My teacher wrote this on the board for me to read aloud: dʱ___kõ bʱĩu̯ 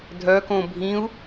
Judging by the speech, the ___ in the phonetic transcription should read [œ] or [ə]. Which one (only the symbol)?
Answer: œ